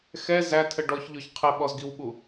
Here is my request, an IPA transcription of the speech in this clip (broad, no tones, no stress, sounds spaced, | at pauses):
x ɛ z æ tʰ ə ɖ ɔ ç ʎ ɔ ç qʰ ɛ ɓ ɔ z ɡ i w ɓ u